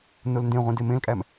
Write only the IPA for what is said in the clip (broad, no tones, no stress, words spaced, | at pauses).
nolndẽʁʷĩ demẽlkʼæm